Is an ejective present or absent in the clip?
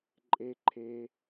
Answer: present